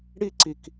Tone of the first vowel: high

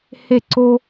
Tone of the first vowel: falling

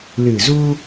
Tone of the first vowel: low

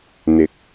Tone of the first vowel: rising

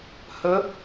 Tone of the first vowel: rising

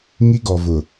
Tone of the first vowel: high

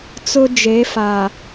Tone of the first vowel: high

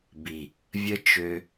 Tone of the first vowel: low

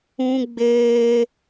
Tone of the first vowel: high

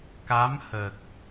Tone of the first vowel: rising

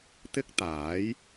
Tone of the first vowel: high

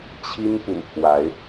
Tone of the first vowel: high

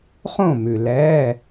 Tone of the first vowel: falling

